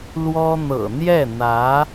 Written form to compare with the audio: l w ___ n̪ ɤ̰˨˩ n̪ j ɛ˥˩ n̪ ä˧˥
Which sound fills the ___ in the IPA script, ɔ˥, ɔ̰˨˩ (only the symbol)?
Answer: ɔ˥